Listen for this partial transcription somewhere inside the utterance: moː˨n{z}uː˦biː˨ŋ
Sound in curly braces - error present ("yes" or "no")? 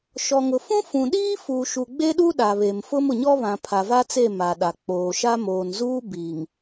no